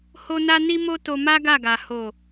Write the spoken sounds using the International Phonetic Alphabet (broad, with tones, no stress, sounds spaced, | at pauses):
h o˦ n a˦ n i˦ m o˦ t o˧ m a˦ ɡ a˦˨ ɡ a˨ h o˨